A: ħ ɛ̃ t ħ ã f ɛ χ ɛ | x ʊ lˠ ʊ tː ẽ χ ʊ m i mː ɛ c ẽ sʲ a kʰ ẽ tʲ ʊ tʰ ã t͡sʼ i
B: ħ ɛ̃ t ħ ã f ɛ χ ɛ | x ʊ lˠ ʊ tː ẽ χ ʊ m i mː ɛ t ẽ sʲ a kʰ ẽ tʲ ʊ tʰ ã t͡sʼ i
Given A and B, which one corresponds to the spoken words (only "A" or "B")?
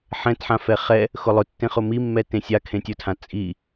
B